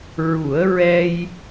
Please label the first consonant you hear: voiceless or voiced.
voiced